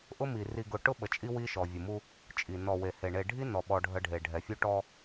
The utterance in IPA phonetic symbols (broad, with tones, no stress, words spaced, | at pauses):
ʔʊ˦mi˨ ri˨ɡʊ˨ ʈʊ˦ɓə˨t͡ʃʼi˦ wi˦ʃɔ˨ vʲʊ˨mu˦ | t͡ʃʼi˨ nɔ˨we˨he˨ ɳe˨ɖʱi˦nɔ˨ ɓɔ˦ɖʱə˦ɖʱe˨ ɖʱɛ˨fʲu˦ʈɔ˦